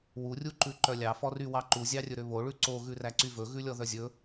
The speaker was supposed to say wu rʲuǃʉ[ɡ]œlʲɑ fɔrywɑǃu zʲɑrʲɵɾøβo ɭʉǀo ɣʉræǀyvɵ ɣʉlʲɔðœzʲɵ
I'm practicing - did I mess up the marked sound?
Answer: yes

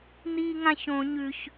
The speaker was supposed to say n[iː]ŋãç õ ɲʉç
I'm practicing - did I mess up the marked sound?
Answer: no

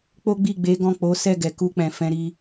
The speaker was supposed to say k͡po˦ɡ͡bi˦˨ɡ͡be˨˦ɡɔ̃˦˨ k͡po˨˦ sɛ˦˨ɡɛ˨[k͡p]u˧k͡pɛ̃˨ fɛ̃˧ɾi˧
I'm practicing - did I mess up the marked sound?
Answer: yes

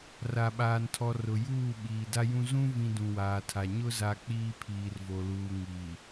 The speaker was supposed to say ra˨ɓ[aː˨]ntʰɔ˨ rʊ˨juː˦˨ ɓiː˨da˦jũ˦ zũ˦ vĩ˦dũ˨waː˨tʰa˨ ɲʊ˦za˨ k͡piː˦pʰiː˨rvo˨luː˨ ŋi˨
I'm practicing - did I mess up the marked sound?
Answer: no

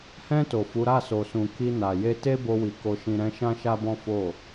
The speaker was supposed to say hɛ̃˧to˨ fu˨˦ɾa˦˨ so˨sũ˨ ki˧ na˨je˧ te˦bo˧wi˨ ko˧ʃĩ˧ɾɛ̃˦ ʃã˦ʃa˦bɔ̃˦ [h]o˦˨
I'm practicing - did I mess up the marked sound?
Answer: yes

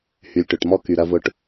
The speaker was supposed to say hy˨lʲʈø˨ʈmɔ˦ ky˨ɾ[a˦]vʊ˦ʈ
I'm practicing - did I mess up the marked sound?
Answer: yes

